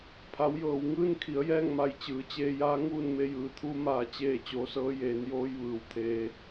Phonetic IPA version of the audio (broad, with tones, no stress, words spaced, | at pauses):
pʰa˩˧wjɤː˩wŋɯː˥˨n kʰi˩˧ə̯jɛː˥˨ŋma˧˩j t͡ɕɯː˩˧t͡ɕeː˧jaː˧˥ ŋuː˥˨nme˧jɯː˩˧t̪ʰuː˧˥ maː˧t͡ɕeː˥˨ t͡ɕoː˧sɤː˧˥ jeː˩˧njoː˧j ʋɯː˩˧wt̪ʰeː˧